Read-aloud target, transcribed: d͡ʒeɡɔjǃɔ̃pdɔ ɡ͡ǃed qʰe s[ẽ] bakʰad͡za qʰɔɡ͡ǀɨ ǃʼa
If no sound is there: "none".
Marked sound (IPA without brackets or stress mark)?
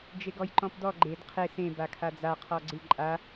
ẽ